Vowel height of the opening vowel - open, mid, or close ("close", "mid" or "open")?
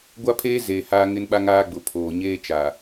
open